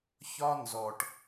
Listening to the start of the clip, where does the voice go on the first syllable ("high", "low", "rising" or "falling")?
high